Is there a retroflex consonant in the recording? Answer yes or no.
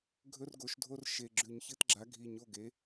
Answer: no